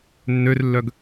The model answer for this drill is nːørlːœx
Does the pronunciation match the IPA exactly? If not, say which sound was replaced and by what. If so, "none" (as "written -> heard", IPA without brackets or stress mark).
x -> ɡ